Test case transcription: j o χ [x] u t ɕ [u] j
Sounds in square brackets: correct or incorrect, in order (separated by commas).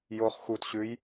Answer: correct, incorrect